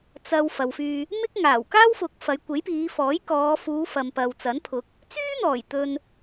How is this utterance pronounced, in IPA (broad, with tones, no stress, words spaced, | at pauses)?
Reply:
t͡sɐ˨w fɐ˨wfyː˧ | mɪ˥k̚ŋaː˨˩w kaː˥wfʊ˨˥k̚ fɐ˨˧jkʷe˨˥jpiː˨˧fɔː˨˥j kɔː˨˧ fuː˨˧fɐ˨m pɐ˨wt͡sɐ˨˥npʰʊ˨˥k̚ | t͡syː˥n̪ɔː˨˩jt̪ɵ˨n